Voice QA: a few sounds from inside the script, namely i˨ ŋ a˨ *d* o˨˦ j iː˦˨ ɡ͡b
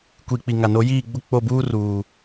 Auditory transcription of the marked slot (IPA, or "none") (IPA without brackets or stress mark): n